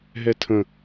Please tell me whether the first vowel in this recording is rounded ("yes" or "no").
no